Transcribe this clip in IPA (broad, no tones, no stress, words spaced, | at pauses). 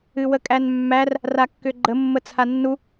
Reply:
ɨwəkʼænmːær | rakːʏɡ͡ǃə mːət͡sʰanːu